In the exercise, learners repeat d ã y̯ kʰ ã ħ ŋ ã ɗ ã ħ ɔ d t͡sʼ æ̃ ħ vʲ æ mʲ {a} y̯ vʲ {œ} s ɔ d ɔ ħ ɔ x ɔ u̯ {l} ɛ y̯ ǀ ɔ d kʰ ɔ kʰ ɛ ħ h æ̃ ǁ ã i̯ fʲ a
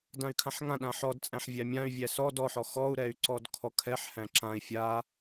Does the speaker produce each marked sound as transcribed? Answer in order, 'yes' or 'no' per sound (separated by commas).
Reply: no, no, no